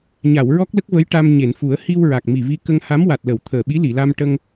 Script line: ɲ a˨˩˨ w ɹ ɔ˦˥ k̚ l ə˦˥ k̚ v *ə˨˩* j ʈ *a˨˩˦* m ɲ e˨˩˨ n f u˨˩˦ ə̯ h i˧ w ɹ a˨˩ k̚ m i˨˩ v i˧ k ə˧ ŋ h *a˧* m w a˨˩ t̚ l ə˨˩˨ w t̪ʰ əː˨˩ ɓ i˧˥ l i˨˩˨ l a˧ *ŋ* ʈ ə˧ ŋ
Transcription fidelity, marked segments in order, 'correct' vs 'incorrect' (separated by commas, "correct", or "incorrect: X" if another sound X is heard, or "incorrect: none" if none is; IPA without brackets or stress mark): incorrect: ə˧˥, incorrect: a˧, incorrect: a˧˥, incorrect: m